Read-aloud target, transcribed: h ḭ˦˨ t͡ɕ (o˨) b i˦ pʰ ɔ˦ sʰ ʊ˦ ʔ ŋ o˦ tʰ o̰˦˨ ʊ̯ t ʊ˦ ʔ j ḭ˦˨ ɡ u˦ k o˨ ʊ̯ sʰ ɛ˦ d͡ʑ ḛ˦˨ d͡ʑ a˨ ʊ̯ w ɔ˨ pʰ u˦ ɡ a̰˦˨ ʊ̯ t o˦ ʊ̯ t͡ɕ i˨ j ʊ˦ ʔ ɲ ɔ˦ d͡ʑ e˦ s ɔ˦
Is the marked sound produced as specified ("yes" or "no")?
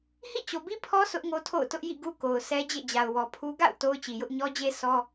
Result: yes